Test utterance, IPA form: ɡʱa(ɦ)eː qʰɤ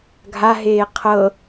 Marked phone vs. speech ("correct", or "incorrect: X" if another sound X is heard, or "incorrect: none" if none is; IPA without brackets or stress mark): correct